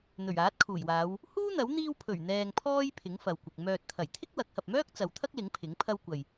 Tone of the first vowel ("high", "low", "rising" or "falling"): low